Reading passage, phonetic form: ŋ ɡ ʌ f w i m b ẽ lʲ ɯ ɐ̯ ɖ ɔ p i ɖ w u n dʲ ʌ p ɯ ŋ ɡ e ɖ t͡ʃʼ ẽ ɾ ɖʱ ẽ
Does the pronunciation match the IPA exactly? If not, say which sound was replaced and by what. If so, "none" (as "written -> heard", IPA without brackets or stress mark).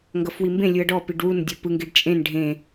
ɾ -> n